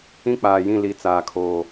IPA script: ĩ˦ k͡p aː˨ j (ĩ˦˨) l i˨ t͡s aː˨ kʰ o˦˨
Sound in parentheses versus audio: correct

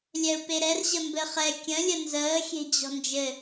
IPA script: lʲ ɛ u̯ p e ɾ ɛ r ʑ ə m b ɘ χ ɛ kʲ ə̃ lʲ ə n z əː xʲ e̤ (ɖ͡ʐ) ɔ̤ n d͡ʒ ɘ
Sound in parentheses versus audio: incorrect: d͡ʑ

